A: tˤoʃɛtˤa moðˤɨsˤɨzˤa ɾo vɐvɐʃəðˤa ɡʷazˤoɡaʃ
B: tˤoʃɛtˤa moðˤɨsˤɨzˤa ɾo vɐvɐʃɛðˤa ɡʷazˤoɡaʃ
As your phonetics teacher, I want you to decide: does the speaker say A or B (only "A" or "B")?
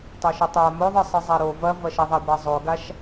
B